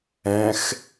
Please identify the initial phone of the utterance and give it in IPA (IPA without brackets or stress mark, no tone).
ɛ̃